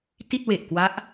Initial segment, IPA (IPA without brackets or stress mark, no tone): t